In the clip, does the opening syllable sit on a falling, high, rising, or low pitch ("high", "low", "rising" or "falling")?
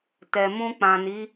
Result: low